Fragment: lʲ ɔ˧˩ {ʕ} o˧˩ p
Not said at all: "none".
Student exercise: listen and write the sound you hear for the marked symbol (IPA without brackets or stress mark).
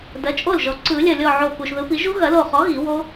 ʕ